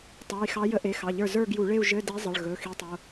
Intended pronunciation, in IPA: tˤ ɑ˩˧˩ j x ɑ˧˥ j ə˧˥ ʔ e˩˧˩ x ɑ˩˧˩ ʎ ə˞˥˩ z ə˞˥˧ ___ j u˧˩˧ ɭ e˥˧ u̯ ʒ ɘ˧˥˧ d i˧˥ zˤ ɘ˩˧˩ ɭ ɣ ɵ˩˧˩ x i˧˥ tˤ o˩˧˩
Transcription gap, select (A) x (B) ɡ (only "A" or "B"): B